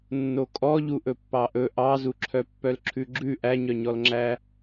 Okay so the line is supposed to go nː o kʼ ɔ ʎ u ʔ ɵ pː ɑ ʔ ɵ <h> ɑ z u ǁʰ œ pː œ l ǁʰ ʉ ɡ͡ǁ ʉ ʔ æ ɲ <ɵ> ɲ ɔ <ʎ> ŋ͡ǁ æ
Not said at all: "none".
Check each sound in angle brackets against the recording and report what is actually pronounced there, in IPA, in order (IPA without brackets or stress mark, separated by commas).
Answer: ʔ, œ, l